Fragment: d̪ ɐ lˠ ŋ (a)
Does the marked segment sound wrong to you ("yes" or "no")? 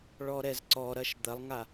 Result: no